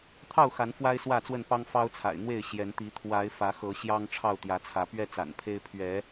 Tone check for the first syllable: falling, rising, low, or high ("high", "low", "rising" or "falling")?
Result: falling